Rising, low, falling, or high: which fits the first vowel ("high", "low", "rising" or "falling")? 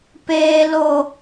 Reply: high